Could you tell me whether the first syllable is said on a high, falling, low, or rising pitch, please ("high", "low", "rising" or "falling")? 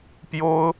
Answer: high